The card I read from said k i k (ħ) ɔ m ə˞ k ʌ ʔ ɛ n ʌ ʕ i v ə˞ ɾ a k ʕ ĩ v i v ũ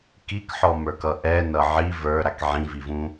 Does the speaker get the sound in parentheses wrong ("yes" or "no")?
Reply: no